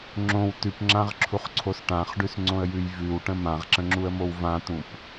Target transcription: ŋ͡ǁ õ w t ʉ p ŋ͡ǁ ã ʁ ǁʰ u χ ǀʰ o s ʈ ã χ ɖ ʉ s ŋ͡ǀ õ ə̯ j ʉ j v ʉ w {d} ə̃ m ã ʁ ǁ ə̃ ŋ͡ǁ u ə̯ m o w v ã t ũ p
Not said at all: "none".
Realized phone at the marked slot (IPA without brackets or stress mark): ʈ